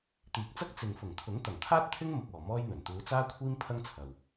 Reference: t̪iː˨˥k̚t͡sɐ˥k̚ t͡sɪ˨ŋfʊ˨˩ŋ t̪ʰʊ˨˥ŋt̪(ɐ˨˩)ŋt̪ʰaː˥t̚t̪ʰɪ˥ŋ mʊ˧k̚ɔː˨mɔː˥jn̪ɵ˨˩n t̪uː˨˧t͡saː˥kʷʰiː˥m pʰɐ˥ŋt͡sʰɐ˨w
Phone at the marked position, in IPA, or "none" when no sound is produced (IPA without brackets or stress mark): ɐ˨˩